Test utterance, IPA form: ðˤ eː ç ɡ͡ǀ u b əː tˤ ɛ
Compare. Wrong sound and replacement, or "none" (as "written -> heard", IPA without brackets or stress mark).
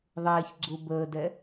tˤ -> d